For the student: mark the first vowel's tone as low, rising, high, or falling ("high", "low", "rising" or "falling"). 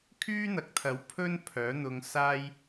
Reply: high